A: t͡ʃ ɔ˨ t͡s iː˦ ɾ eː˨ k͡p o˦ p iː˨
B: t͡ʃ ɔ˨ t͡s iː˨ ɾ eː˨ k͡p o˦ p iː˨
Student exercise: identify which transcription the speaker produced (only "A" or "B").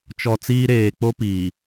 A